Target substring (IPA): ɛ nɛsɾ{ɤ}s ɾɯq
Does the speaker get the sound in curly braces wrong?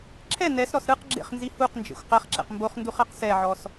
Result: yes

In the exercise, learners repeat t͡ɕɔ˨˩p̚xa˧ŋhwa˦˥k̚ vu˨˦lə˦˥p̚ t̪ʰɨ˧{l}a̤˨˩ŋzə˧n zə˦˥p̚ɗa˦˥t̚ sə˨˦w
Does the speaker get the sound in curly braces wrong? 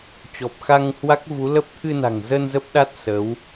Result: yes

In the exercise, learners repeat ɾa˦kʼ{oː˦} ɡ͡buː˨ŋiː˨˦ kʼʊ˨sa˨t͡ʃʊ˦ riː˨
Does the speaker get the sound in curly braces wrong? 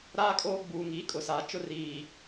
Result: no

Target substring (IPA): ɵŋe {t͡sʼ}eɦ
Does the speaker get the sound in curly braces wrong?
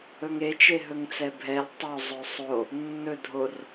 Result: yes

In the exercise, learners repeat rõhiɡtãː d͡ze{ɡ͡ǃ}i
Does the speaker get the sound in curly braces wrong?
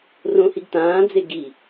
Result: yes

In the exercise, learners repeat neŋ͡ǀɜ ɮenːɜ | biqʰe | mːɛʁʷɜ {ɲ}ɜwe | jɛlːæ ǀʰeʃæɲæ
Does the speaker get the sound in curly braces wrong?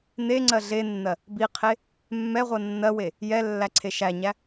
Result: yes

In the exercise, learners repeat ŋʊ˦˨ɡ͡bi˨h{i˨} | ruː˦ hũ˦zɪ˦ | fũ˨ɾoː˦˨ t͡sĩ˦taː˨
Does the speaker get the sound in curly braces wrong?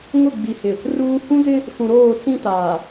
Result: yes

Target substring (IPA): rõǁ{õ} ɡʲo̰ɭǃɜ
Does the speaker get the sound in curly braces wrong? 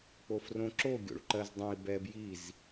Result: yes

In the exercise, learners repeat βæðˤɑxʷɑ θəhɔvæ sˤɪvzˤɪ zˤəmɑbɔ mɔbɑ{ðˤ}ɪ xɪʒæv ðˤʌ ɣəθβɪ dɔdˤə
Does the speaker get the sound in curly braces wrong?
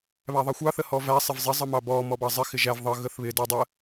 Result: yes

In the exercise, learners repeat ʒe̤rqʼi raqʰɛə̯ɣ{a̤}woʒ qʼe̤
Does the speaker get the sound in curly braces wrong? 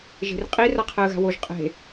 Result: no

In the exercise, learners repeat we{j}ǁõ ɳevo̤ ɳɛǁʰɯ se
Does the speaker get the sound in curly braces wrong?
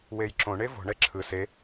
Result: no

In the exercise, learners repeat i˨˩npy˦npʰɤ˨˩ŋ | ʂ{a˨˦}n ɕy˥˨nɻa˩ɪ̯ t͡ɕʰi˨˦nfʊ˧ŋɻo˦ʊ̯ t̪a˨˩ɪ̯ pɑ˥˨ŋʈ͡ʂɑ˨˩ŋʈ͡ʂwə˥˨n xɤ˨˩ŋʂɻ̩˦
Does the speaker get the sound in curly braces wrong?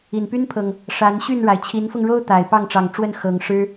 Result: no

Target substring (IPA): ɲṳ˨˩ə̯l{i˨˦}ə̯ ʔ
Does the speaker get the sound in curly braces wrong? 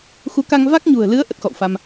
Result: yes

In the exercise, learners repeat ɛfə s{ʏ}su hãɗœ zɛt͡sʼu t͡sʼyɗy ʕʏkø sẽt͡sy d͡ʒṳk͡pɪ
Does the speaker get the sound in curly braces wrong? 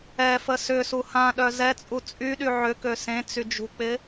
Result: no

